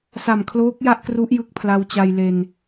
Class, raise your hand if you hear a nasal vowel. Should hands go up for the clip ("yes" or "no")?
no